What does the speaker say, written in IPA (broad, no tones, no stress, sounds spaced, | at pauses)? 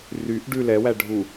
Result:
r y ʔ ɖ ʉ l ɛ w æ ɖʱ u